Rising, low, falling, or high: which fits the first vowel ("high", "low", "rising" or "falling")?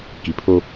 low